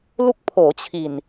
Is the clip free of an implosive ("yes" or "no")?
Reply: yes